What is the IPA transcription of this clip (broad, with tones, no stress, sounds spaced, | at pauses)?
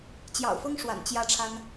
t͡ɕ j ɑ̰˨˩ ʊ̯ f ɤ˥ ŋ ʂ w a̰˨˩ n t͡ɕ j ä˥˩ ʈ͡ʂʰ a˥ n